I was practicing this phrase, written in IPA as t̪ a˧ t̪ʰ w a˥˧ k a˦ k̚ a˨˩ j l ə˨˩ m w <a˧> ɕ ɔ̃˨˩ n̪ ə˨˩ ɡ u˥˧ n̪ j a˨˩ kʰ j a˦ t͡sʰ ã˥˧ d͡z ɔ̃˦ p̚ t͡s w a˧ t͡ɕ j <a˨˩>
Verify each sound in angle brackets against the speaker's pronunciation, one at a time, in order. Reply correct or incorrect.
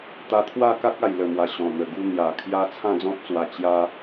incorrect, incorrect

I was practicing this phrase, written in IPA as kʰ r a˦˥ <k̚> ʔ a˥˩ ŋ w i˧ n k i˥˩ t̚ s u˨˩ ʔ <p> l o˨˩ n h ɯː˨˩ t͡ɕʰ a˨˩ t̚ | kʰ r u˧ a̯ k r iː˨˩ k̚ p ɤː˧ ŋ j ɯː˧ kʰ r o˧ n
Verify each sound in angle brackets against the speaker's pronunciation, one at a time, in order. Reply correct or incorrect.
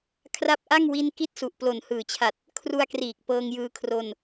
incorrect, correct

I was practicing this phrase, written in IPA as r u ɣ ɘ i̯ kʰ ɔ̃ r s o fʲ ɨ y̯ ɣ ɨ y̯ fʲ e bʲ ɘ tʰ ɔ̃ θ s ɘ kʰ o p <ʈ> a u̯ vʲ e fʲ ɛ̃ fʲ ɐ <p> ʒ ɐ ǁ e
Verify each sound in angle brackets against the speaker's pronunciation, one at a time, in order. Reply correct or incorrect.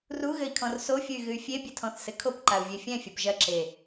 incorrect, correct

